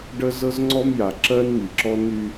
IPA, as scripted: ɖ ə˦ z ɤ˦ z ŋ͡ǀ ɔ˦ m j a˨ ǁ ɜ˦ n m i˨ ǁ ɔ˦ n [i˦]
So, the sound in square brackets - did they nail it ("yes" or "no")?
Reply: no